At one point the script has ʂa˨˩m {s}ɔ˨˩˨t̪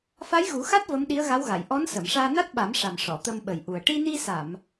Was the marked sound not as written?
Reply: yes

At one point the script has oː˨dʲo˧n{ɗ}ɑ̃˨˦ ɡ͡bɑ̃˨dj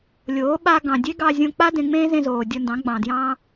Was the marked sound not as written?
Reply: yes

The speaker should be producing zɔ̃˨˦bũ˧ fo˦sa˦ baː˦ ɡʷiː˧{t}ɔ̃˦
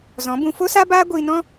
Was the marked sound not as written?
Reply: yes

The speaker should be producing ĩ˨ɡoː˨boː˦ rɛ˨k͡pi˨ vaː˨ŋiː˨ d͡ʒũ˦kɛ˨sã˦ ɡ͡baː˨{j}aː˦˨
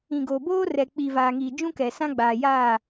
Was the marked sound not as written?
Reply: no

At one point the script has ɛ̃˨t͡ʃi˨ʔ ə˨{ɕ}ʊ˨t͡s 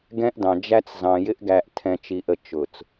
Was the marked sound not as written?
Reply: yes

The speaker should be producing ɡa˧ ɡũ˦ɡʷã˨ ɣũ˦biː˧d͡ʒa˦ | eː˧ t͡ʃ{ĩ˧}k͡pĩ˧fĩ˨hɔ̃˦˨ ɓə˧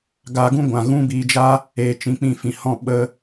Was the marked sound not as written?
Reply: no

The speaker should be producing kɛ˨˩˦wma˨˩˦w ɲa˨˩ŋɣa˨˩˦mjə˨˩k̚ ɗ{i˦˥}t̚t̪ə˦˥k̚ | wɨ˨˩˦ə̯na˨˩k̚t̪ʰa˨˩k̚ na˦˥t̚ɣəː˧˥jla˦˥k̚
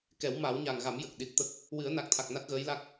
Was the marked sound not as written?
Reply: yes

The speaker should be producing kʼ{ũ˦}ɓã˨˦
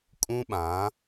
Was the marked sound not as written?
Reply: no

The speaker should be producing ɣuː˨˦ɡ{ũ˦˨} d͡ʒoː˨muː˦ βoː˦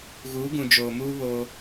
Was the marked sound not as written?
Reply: yes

